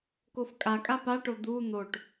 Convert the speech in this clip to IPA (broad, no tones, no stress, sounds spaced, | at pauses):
k o f kʼ a kʼ a p a ʈ o d̪ u n̪ o ʈ